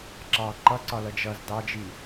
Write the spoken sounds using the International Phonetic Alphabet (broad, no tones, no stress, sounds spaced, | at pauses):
ǁ ɑ ǃ ʌ ǀ ɒ l ʌ d͡ʒ ʌ z d ɑ d͡ʒ i